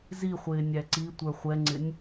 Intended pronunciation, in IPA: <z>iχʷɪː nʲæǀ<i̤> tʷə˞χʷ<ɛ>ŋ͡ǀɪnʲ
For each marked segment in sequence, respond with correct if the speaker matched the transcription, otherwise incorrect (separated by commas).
correct, incorrect, correct